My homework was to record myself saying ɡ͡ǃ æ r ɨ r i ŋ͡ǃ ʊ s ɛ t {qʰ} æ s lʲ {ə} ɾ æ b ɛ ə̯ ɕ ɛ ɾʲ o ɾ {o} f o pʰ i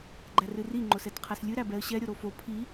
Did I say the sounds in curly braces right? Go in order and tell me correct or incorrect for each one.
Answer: correct, incorrect: ɨ, correct

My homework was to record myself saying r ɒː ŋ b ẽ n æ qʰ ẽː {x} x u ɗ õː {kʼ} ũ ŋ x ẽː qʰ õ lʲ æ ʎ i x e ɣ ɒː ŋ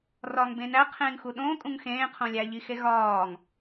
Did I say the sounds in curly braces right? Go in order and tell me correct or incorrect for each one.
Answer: incorrect: ŋ, correct

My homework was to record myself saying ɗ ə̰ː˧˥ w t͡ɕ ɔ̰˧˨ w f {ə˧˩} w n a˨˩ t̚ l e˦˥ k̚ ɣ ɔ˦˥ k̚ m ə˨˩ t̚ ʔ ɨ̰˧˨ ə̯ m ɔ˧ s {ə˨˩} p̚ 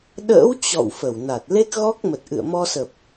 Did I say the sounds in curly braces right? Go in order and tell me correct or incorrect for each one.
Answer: correct, correct

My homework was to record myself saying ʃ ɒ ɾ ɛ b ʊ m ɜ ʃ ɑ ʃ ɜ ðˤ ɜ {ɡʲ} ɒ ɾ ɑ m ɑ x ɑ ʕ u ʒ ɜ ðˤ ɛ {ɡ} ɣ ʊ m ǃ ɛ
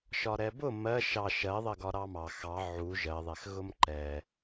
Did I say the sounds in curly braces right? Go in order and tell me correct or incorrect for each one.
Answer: incorrect: ɡ, incorrect: x

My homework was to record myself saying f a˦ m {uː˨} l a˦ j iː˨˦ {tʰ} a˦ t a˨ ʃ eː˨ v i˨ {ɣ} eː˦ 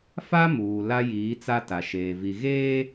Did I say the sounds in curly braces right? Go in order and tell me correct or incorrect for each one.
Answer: correct, incorrect: t͡s, correct

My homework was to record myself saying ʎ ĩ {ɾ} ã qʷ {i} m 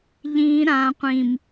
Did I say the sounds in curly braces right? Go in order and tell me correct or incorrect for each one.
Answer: correct, incorrect: ĩ

